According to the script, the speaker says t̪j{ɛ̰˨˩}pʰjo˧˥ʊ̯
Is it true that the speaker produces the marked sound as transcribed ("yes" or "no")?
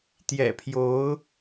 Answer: yes